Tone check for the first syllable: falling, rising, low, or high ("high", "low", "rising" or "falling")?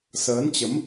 rising